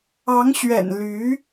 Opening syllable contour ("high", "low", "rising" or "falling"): rising